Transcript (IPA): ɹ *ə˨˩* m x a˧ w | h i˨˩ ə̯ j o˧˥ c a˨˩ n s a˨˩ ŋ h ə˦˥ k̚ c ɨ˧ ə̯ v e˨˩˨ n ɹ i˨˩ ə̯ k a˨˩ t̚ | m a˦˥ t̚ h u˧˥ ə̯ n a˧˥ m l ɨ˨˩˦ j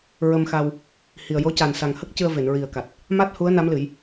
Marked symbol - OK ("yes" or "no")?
no